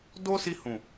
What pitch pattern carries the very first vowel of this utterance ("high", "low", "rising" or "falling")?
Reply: high